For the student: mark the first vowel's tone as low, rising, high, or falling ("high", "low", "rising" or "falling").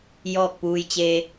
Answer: falling